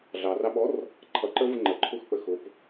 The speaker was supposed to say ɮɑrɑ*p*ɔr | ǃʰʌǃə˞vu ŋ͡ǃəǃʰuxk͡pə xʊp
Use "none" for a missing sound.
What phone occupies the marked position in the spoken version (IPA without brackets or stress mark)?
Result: ɓ